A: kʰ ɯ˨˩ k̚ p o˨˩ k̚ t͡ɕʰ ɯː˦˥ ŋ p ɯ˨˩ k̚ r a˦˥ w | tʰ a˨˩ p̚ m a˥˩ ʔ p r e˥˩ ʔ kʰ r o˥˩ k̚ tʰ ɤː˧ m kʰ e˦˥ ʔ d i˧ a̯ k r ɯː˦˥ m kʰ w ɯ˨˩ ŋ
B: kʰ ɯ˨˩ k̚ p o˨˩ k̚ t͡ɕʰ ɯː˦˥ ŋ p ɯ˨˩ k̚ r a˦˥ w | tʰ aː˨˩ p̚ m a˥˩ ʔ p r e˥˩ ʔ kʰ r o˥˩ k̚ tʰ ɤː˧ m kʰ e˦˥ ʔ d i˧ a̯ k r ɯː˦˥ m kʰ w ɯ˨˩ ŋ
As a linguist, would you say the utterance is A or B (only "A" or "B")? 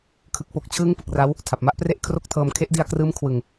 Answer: A